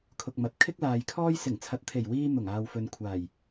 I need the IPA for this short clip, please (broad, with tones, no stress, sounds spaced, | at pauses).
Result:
kʰ ʊ˨ k̚ m ɐ˨ t̚ kʰ ɪ˥ k̚ l aː˨ j kʰ ɔː˥ j s ɪ˨˩ ŋ t͡sʰ ɐ˨˥ t̚ t̪ʰ e˨˩ j w iː˧ n̪ ʊ˨˩ ŋ aː˨ w f ɵ˨ n kʷʰ aː˨˩ j